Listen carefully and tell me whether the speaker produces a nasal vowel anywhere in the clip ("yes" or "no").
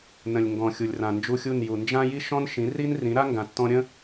yes